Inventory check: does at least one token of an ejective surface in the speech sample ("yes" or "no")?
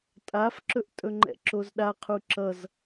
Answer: yes